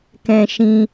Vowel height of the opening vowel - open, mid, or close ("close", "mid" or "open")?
mid